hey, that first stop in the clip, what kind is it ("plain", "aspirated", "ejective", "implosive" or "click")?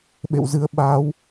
implosive